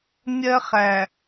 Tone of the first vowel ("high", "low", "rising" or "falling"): high